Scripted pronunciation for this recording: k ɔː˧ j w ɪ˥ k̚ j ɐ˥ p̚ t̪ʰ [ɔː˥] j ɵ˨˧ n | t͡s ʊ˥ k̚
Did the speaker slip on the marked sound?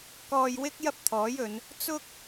yes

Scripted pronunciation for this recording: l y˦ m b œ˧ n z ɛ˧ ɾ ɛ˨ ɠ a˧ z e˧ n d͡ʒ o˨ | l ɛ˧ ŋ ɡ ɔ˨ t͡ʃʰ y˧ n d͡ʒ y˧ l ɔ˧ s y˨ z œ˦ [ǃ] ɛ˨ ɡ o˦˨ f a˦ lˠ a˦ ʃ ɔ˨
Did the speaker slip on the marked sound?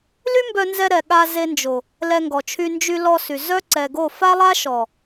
yes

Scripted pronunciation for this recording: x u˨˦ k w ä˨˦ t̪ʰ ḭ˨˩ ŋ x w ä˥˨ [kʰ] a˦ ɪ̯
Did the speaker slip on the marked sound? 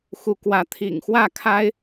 no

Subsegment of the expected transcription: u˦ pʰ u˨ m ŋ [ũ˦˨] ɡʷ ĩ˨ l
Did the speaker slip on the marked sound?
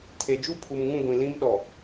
no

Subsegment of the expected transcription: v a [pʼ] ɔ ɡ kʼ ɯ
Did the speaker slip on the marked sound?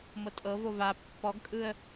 yes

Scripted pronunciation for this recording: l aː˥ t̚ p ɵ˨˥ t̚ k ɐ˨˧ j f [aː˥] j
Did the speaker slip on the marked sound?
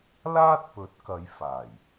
yes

